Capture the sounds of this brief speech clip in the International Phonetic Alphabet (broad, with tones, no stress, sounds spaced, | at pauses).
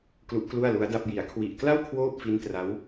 k l u˦˥ ʔ k l u˥˩ a̯ l u˦˥ a̯ d a˥˩ p̚ j i˩˦ a̯ kʰ w i˨˩ ʔ k l a˥˩ w kʰ w oː˥˩ p̚ f i˦˥ n t r a˦˥ w